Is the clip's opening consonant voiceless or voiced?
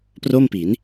voiceless